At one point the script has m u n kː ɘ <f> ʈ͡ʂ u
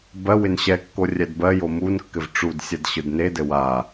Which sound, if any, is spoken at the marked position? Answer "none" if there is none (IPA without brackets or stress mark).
v